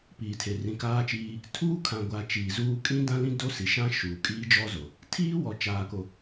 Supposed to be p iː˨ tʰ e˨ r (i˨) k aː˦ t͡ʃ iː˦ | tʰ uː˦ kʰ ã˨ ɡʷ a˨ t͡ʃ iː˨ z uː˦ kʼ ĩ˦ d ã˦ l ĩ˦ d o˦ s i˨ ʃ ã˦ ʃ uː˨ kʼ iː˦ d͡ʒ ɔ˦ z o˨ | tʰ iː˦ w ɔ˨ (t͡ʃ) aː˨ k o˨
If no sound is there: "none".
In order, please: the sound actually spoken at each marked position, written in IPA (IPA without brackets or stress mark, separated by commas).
ĩ˨, t͡ʃ